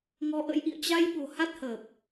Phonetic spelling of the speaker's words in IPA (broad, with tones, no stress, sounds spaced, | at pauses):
ŋ ɔ˧ ʔ ə̰˧˥ j ʔ ḭ˧˨ ə̯ t͡ɕ a˧ j ɓ o̤˨˩ h a˦˥ t̚ h əː˨˩ p̚